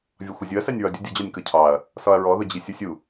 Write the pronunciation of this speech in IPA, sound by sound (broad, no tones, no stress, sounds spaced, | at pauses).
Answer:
vʲ ɒ xʷ ʌ zʲ ʊ ɐ̯ s æ nʲ ɹ ɒ dʲ ʊ dʲ ʊ d͡ʑ ɒ nʲ k ʌ cʰ ɑ ɐ̯ | s ɒ ɐ̯ ɹ ɔ ð ʊ d͡ʑ i sʲ u sʲ u